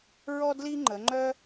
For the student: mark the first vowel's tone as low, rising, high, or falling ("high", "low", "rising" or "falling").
high